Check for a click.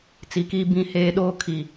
absent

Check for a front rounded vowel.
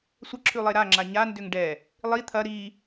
present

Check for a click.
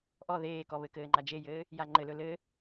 present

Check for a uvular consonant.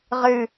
present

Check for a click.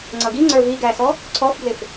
present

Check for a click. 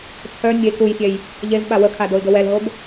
absent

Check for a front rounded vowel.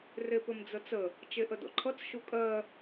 absent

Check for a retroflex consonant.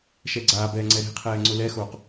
absent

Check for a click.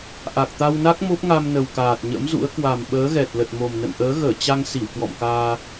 absent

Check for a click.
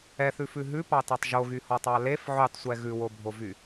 absent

